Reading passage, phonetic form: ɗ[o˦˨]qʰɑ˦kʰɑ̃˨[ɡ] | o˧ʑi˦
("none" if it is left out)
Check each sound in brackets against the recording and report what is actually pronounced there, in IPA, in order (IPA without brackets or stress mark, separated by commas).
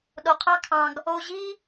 o˨, ɡ